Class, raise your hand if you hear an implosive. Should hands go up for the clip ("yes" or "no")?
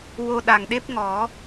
yes